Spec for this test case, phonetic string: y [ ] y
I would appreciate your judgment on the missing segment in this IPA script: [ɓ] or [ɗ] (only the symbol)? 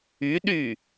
ɗ